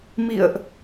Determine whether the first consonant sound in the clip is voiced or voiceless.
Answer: voiced